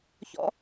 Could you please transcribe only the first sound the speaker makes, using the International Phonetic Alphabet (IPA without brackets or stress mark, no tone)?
ç